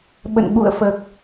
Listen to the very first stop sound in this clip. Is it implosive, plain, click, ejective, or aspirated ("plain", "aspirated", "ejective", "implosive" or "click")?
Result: implosive